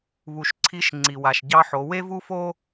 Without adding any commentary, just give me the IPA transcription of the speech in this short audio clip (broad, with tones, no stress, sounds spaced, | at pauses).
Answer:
β u˩ ʃ ǀʰ i˨˥ ʃ ŋ͡ǀ i˩ w a˩ ʃ ɟ ɑ˥ ħ o˨˥ w e˥ v u˥ f o˥